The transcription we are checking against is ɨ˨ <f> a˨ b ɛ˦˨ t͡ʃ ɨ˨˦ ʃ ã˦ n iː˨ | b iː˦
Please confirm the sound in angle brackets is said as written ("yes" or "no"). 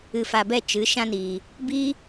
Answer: yes